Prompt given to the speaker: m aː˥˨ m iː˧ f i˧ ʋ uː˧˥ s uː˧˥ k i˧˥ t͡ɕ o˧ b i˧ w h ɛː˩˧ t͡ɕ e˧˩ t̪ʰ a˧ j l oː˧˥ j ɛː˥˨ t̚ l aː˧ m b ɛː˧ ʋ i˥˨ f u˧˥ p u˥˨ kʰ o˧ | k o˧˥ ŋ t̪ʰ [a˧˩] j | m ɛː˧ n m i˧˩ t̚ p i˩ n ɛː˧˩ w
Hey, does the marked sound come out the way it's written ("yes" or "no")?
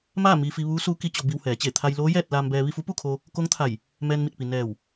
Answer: yes